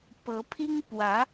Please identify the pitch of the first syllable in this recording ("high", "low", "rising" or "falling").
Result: rising